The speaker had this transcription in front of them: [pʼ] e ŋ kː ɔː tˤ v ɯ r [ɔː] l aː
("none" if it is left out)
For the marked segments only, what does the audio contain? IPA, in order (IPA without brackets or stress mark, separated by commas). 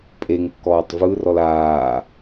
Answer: pʼ, ɔ